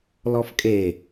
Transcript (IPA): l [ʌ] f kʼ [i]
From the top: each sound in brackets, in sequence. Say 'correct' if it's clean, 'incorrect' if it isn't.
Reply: incorrect, incorrect

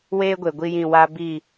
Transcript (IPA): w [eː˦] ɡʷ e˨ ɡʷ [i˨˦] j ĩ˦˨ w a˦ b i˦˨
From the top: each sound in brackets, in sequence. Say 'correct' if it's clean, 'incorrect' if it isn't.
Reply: correct, incorrect

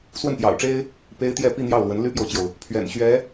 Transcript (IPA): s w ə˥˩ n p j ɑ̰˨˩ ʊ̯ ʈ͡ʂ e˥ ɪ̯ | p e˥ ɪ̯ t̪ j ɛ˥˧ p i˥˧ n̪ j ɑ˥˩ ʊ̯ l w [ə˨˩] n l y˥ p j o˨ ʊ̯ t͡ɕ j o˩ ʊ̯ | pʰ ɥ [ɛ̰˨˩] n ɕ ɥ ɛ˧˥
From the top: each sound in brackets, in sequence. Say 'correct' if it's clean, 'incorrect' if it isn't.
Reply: incorrect, correct

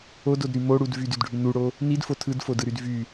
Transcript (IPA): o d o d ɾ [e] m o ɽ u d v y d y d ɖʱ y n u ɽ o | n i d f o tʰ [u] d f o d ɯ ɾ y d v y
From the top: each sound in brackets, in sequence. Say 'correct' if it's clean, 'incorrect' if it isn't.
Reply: incorrect, incorrect

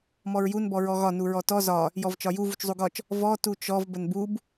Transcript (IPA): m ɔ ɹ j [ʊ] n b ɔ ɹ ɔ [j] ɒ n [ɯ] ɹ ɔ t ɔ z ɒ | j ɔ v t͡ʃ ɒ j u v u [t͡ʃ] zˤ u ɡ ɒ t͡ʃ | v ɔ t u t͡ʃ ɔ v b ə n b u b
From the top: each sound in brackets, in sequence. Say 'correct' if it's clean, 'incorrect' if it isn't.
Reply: incorrect, incorrect, incorrect, correct

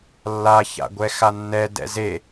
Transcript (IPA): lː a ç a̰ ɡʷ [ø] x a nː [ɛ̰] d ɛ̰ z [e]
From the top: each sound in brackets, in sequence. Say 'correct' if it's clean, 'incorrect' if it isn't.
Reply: incorrect, incorrect, correct

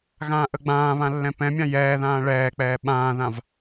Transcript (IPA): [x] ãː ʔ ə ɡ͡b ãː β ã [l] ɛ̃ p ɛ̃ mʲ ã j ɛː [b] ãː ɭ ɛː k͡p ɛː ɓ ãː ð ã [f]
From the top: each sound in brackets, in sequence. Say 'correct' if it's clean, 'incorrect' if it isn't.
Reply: incorrect, incorrect, incorrect, incorrect

